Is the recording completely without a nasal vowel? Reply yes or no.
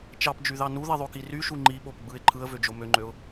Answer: yes